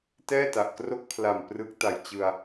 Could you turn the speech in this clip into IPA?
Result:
t ɛː˥˩ t a˨˩ ʔ k r o˥˩ k̚ pʰ l a˨˩ m p r ɯ˦˥ k̚ t a˨˩ j t͡ɕ ɯ˧ a̯

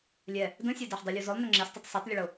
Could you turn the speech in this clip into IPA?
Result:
lʲ ɛ | d ə̃ sʲ ɛ d e ħ dˤ ə lʲ u z ʊ lˠ n ʏ ŋ͡ǁ ɛ s tˤ ʏ tˤ s e tˤ lʲ ə ɭ ʊ

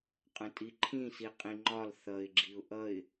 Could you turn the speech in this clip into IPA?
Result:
qʼ ə̃ tʼ i ǃʰ ĩ s i qʼ ĩ ŋ͡ǃ ɒ l θ ʌ ɪ̯ ɡ͡ǁ i ʊ̯ ʔ ʌ ɪ̯

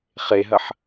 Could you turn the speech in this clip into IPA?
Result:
χ e ɦ ɐ ħ

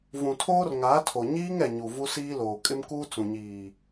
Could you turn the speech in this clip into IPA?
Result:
v ũ˨ tʰ oː˦ r ŋ aː˨˦ tʰ o˨ ɲ iː˦ ŋ ɛ˨ ɲ u˨ v u˦ s iː˦ l oː˨ kʼ ɪ˦ m k uː˦ t͡s ũ˨ ɲ iː˨

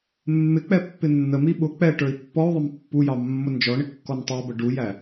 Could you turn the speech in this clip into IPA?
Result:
mː ɪ k͡p ɛ pː ɪ nː ə m i ɓ ʊ k͡p ɛ ʈ ə˞ i̯ pː ɔ u̯ ðˤ ə m pː u j ɑ mː ʊ n d͡ʒ ɔ ɳ ɪ kː ɔ n tˤ æ b ə ɖ u j æ

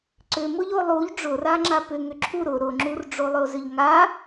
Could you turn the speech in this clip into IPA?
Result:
ǀ ʏ m ʊ ʎ o lˠ u ʎ ɖ͡ʐ ʊ r a ŋ͡ǁ a p ʏ ŋ ʏ ǁʰ u ɾ ʊ ɾ ʊ ŋ͡ǁ u r ɖ͡ʐ o lˠ ʏ o̯ z ʏ ʎ ŋ a

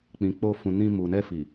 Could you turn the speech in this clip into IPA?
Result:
k͡p ĩ˨ k͡p o˧ f ũ˨ n ĩ˧ m u˨ n ɛ˧ f i˨

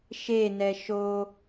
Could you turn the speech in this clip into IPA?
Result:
ʃ e n ɛ ʃ o

